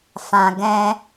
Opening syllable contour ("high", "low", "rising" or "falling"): low